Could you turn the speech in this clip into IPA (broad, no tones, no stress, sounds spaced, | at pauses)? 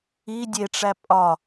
i dʲ e ʈ͡ʂ æ pʼ ɒ